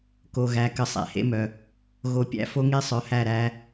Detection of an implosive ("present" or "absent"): absent